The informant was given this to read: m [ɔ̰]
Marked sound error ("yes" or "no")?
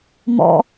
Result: no